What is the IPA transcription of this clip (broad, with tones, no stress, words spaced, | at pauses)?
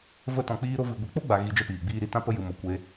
və˧ tɔ̃˨k͡piː˧ɾo˧ vɨ˨ ɡʷi˨k͡po˦ɡ͡ba˨ ɣi˧d͡ʒə˦piː˨ɡ͡biː˦ ɾi˧tã˦pə˦ jɨ˨mo˨ kʷe˧